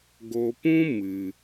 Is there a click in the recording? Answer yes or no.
no